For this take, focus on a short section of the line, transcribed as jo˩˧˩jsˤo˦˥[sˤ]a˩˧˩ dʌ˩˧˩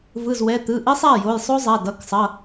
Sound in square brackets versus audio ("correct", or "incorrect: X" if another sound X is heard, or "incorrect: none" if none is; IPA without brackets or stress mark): incorrect: zˤ